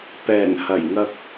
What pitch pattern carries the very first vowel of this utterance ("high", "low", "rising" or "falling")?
low